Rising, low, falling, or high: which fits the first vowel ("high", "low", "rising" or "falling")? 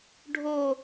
falling